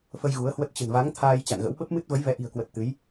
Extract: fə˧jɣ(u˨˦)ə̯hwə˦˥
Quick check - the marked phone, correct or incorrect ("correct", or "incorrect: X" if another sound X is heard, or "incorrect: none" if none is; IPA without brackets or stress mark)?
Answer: correct